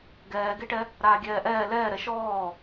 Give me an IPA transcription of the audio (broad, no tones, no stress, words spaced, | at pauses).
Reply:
ɡɛːɡeʈɛ | ɾaːɡʲɛːʔɛː lɛːɾɛ ʃɔː